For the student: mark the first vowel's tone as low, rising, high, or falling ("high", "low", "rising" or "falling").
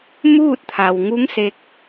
falling